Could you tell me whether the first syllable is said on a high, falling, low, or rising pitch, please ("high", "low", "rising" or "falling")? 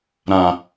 low